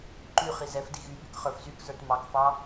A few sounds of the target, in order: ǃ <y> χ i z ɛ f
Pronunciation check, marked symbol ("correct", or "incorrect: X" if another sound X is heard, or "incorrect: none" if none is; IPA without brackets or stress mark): correct